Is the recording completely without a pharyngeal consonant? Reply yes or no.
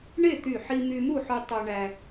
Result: no